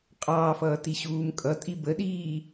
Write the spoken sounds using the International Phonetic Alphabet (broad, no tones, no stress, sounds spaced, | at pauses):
qʼ ɑː f ʌː t i ɕ uː m kʼ ʌ tʼ i b ə ɗ iː